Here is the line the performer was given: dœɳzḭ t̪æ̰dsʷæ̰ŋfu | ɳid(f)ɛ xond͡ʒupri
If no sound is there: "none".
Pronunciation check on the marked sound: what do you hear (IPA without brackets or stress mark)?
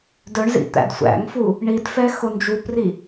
f